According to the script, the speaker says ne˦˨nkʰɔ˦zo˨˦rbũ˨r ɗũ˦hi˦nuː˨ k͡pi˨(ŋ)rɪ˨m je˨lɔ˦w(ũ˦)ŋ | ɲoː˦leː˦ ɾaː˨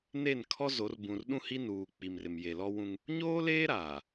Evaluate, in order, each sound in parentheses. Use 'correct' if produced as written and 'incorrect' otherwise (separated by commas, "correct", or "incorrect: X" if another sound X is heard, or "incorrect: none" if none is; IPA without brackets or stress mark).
incorrect: m, correct